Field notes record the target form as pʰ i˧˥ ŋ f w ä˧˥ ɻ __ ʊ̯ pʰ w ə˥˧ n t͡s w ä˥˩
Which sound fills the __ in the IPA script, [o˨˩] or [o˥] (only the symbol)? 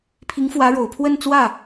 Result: o˨˩